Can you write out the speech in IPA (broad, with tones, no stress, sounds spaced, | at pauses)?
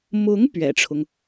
m ʊ˧˥ ŋ p ɥ ɛ̰˨˩ ʈ͡ʂʰ ʊ˦ ŋ